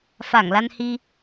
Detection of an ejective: absent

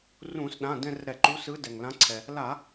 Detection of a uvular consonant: absent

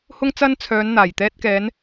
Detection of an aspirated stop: present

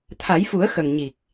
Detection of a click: absent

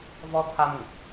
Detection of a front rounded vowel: absent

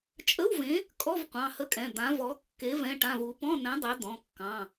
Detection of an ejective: present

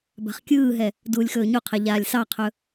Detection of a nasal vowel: absent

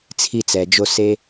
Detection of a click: absent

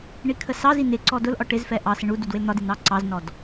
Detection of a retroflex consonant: present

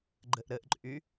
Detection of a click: present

